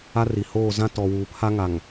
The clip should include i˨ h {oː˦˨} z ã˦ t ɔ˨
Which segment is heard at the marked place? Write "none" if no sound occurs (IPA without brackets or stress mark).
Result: oː˦˨